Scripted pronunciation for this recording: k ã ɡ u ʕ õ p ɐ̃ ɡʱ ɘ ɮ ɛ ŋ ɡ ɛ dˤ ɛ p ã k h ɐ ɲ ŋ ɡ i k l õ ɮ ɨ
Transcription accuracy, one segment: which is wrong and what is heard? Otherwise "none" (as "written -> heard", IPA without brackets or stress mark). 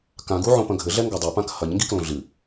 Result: none